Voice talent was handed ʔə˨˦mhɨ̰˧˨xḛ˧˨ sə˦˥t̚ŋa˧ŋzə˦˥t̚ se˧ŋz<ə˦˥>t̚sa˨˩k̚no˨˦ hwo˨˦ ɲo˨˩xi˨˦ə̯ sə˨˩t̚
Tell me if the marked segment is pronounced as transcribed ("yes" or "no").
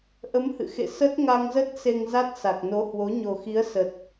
no